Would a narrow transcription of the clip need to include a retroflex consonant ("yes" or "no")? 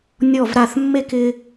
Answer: no